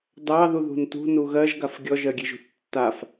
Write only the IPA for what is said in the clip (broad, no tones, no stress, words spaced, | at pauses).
dɑðu ðṳntṳ nuɣɜʒɡaf ɡʲɔʒɜɡʲeʒṳθ tːaf